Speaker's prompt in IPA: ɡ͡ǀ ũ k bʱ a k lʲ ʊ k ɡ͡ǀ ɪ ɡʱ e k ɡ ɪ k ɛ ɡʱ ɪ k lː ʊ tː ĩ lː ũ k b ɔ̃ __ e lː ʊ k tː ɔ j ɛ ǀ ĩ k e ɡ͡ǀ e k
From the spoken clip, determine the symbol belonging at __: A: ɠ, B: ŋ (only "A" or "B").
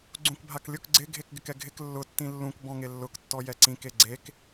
B